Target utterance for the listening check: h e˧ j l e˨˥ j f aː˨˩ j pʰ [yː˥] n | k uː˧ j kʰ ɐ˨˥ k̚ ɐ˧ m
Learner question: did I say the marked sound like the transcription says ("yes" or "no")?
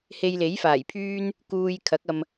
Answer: yes